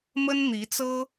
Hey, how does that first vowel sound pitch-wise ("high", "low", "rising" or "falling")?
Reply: high